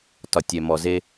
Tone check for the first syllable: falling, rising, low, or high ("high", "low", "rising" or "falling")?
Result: low